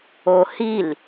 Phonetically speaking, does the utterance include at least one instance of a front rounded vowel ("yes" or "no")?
no